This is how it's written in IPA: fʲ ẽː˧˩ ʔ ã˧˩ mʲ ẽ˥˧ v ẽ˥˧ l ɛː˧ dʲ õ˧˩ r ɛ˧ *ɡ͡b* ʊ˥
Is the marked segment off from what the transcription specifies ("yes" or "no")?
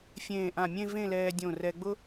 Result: no